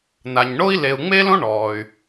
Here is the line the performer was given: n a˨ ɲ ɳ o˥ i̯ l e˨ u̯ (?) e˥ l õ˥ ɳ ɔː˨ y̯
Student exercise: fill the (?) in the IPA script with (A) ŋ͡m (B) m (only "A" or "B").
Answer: A